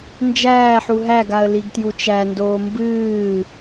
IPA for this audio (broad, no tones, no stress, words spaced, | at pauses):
nd͡ʒæːħu ɦæɡaə̯ liɡtjut͡ʃændoː mbɨː